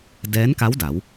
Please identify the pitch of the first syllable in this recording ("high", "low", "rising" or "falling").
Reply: rising